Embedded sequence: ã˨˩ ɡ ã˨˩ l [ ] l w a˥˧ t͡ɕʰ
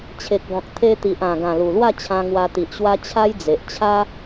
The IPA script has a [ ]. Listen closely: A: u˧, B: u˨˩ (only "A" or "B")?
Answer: B